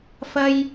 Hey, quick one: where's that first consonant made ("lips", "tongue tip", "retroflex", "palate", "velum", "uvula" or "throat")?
lips